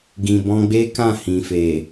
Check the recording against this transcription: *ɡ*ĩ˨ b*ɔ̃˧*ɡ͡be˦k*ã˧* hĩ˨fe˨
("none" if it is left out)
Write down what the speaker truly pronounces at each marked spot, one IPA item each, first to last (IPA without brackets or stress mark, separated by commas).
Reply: ɡ, ɔ̃˧, ã˦˨